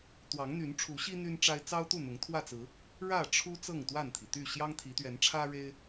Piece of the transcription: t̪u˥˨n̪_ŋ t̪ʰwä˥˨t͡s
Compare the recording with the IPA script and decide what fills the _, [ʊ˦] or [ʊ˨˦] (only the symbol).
ʊ˨˦